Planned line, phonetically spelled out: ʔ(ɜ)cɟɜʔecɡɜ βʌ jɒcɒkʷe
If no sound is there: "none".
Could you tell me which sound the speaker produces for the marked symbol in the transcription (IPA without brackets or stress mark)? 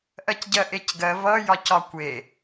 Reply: ɜ